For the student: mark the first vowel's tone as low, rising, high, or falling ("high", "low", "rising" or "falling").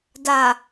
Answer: low